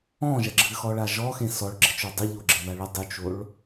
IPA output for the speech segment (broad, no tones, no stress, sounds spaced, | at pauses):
ɔ̃ ʒ ɐ ɡ͡ǁ ɨ x ɔ ɭ a ʒ ɔ x ẽ s ɔ ɭ ɡ͡ǁ ɘ t͡ʃ o dˤ ɨ ʎ o ɡ͡ǁ ɘ ð a ɭ ɐ dˤ u t͡ʃ o ɭ